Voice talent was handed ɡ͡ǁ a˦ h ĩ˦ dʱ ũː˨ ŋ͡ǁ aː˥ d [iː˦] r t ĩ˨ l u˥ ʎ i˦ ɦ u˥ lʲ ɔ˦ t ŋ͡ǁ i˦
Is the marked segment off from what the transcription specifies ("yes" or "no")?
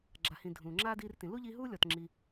no